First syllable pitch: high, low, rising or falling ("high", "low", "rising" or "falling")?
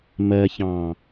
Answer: low